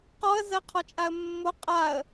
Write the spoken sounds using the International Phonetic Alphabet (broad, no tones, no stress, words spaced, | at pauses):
qɔə̯zɜqʰɔt͡ʃʼaə̯ mːo qʼaə̯